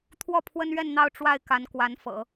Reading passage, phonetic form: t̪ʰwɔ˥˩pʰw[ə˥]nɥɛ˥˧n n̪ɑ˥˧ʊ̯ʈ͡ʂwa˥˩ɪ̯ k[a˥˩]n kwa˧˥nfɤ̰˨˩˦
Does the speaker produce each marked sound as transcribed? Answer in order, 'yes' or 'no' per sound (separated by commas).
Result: yes, no